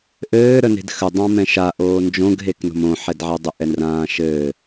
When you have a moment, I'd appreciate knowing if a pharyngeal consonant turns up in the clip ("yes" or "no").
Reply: yes